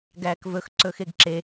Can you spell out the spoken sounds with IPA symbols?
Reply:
ɡ æː k v ɵ x ǀ ɵː x e ɡ ǁ e

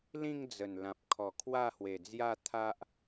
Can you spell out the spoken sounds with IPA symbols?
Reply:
l ĩ˥˧ ŋ d͡z ə˨˩ n l ã˨ p̚ kʰ ɔ˨˩ kʰ w a˥˧ h w e˨˩ d͡z j a˥˧ t̪ʰ a˦ ʔ

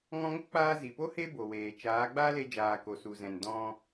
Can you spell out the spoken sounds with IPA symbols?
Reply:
ŋ ɔ̃˧ ŋ o˦ k͡p aː˧ z i˨ p o˦ h e˦ b o˨ w eː˨ t͡ʃ aː˨˦ ɡ͡b aː˦ l e˧ d͡ʒ aː˨ k o˨ s u˨ z ɛ̃˨ n d ɔ̃˧

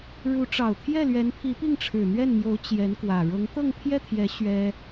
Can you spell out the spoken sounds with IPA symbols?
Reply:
ɻ u˧˥ ʈ͡ʂ ɑ˨˩ ʊ̯ t̪ʰ j ɛ˥˩ l ɥ ɛ˧˥ n pʰ i˧˥ p i˥˩ ŋ ʈ͡ʂʰ ɻ̩˨˩ n̪ ɥ ɛ˥˩ n m j o˧˥ ʊ̯ t͡ɕ j ɛ˧˥ n k w ä˨˩ ɻ ɤ˧˥ ŋ t̪ ɤ˥˧ ŋ pʰ j ɛ˥˩ t̪ʰ j ɛ˧˥ ɕ ɥ ɛ˥

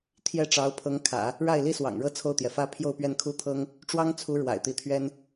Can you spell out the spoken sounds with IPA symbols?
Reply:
t̪ʰ j ɛ˥ ʈ͡ʂ ɑ˧˥ ʊ̯ pʰ ɤ˧˥ ŋ kʰ ä̰˨˩˦ | ɻ a˥˩ ɪ̯ l i˥ s w ɑ̰˨˩ ŋ ɻ ɤ˥ t͡sʰ o˥˩ ʊ̯ t̪ j ɛ˩ f ä˥ pʰ j o˥˧ ʊ̯ p ɥ ɛ˥˩ n kʰ u˥ t̪ʰ ɤ˥ ŋ | ʈ͡ʂ w ɑ˥ ŋ t͡sʰ u˧˥ ɻ w a̰˨˩ ɪ̯ t̪ i˧˥ t̪ʰ ɥ ɛ˥ n

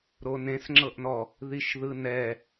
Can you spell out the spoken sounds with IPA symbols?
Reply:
ɾ o n ẽ s ŋ͡ǁ ɤ ʔ n ɔ | ð i ʃ ð ɯ n ɛ

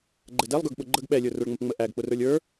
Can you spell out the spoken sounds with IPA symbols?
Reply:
ɡ͡ǃ ɛ d ɛ lˠ ɡ ə˞ ɡ ɓ ʊ ɡ͡ǃ ə ɡ ɓ ɛ lʲ ə˞ r ə˞ ɭ ŋ͡m ə p ŋ͡m ə ʔ æ ɡ k͡p ʊ r ə˞ lʲ ə˞

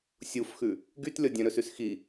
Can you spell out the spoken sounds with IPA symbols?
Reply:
sʲ u f x ʉ | ɡ y t lʲ ɔ dʲ œ̃ ɾ ɵ s ʉ s x i

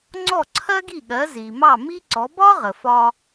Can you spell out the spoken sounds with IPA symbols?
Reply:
ŋ͡ǀ ɔ˥˩ ǀʰ ɜ˥ ɡ i˥˩ ɠ ɜ˩˥ z i˩ m ɑ˥˩ m i˥ ǀ ɔ˩˥ b ɒ˥ ʁ ə˩ f ɒ˧

